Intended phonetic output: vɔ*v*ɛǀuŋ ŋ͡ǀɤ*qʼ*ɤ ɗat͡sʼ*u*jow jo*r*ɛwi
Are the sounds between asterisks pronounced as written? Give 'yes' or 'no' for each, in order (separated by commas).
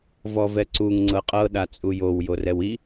yes, yes, yes, yes